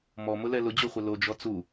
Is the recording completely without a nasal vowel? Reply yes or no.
yes